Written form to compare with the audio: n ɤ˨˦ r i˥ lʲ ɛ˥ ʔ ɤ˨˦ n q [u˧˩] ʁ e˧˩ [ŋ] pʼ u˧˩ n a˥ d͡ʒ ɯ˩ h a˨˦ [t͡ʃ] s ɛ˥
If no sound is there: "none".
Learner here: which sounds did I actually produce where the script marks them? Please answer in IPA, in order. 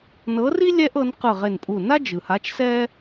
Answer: ɯ˧˩, n, t͡ʃ

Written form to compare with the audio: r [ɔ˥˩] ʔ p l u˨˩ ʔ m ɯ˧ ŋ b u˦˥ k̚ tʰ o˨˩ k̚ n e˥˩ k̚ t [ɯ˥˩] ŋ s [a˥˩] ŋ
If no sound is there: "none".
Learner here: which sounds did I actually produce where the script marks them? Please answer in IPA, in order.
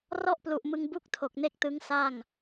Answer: ɔ˥˩, ɯ˦˥, a˥˩

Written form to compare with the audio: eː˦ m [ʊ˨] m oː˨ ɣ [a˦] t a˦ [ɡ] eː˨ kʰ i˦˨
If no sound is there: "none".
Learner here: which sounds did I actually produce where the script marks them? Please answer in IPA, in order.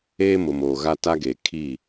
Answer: ʊ˨, a˦, ɡ

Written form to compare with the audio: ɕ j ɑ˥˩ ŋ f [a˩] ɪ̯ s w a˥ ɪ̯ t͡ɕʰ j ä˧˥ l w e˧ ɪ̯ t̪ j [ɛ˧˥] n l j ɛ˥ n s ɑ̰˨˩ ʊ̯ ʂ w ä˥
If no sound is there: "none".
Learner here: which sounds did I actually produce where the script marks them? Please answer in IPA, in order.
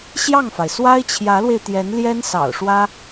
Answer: a˩, ɛ˧˥

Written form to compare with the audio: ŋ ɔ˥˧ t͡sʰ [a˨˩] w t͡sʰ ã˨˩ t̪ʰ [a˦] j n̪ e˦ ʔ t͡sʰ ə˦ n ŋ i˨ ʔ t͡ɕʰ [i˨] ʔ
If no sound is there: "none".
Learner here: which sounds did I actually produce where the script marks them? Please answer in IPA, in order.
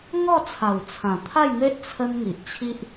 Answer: a˨˩, a˥˧, i˦

